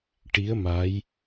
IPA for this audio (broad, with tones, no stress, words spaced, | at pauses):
ʈi˧˥ə̯ ma˧˥j